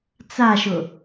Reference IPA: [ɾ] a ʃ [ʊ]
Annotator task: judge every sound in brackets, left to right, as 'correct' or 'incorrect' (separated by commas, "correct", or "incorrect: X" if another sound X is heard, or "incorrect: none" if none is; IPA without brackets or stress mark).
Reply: incorrect: t͡s, correct